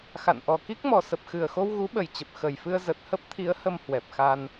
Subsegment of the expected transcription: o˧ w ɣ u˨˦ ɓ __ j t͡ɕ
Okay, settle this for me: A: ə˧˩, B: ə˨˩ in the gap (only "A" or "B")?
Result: B